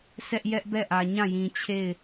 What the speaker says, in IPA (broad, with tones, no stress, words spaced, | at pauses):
sʰɛ˦ʔ jɛ˦ʔbɛ˦˨ʔä˨ ɲã˦˨jĩ˨t͡ɕʰe˦˨ɪ̯